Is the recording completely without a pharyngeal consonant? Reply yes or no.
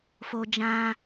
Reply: yes